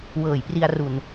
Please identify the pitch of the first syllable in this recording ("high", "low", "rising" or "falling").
low